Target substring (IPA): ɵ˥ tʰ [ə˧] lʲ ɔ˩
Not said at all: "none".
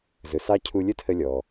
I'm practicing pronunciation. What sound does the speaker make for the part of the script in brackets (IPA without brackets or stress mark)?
ə˧